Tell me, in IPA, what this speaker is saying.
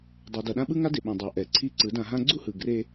dˤ o˨ d ʌ˨ ɗ ã˦ ɓ ɯ˦ ŋ a˦ d e˨ ɓ ĩ˨ dˤ a˨ ʔ ɛ˨ ǀʰ i˦˨ ǀ ɯ˨˦ d ã˧ ɦ ã˦ ɡ͡ǀ u˦ h ɯ˨ ɡ r e˧

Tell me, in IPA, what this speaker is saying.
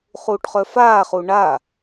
χ uː ʈ χ œ f aː χ u ɳ a

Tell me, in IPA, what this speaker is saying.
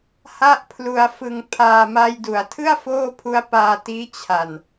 h a˥˩ ʔ pʰ l u˧ a̯ f ɯ˧ ŋ pʰ aː˧ m a˧ j d u˩˦ a̯ tʰ ɯ˥˩ a̯ f oː˥˩ pʰ u˦˥ a̯ p aː˧ t iː˦˥ t͡ɕʰ a˨˩ n

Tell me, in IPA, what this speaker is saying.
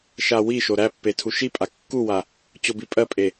ʃ a w i ʃ o ɾ æ pː e tʰ u ʃ i pʼ a kː u w a | t͡ɕ o b i pʼ ɜ pʼ e

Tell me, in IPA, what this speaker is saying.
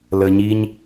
l ə˨ ɲ i˦ ɲ

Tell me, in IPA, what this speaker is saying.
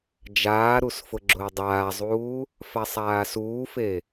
d͡ʒ aː ɾ u s f ʊ ɡ͡ǁ ʊː dˤ aː zˤ uː | f a sˤ aː s uː f e

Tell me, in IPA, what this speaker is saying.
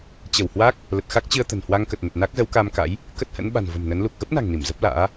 t͡ɕ ə˧˩ w h w a˦˥ k̚ | l ə˨˩ t̚ x a˦˥ k̚ t͡ɕ ɨ˧ ə̯ t̪ ə̤˨˩ n h w a˧ ŋ k ə˨˩ t̚ n ə˨˩ t̚ n a˦˥ k̚ z ə˨˦ w k a˧ m k a̰˧˥ j | k ə˦˥ t̚ h ə̰˧˥ n ɓ a̤˨˩ n v ə̤˨˩ m n ə˨˦ n l u˨˩ k̚ ɣ ə˦˥ p̚ n a̤˨˩ ŋ n i˧˩ m z ə˦˥ p̚ l a̰ː˧˥

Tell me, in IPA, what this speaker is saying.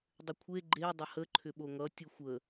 dˤ ʏ kʷʰ e ɡ͡ǃ e dˤ ə h ə ǃʰ ʏ ɓ o ŋ ʌ tʲ ɯ xʷ ə

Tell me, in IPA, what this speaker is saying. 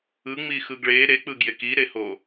ɯ ŋ͡m i x ɯ ɡ ɭ e ɾ e k͡p ɯ ɡ j e k i ɾ e h o

